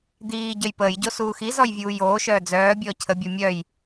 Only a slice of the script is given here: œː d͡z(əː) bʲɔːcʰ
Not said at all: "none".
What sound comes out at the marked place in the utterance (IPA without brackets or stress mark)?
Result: œː